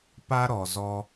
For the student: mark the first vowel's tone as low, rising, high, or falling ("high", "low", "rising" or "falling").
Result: high